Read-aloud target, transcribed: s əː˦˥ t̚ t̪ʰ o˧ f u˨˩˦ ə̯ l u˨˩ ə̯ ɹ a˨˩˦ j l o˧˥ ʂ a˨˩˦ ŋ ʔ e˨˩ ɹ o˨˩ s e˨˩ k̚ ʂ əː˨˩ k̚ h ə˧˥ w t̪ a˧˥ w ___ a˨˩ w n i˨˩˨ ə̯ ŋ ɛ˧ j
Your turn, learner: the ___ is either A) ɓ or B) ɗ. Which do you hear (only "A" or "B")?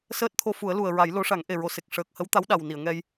B